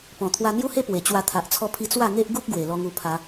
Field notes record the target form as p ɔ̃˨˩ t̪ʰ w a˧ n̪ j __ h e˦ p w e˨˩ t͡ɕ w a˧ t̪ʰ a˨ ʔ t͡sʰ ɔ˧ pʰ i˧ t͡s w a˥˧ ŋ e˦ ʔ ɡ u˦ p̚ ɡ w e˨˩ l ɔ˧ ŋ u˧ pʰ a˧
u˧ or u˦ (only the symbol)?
u˦